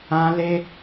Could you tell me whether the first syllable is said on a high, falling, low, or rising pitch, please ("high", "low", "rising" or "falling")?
high